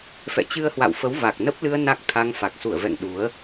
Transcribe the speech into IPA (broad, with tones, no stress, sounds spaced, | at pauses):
f ɛ̰˧˨ t͡ɕ ɨ˧ ə̯ h w a̰˧˨ w f ə˨˦ w v a˨˩ k̚ n ə˦˥ p̚ l ɨ˧ ə̯ n a˦˥ k̚ t̪ʰ a˧ ŋ f a˨˩ k̚ s u˧˩ ə̯ v ɛ̰˧˨ ŋ ɗ u˨˦ ə̯